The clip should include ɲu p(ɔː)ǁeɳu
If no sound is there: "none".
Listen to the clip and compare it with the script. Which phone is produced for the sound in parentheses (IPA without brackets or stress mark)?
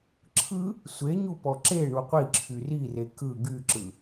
ɔ